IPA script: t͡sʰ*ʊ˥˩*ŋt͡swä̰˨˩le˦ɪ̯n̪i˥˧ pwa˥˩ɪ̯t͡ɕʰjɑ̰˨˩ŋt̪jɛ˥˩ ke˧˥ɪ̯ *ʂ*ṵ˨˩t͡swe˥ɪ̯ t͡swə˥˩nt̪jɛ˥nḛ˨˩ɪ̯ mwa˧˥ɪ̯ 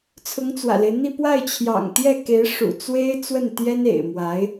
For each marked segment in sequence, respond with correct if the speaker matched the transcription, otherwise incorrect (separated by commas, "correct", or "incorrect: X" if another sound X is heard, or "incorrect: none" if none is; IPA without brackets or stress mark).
incorrect: ʊ˧˥, correct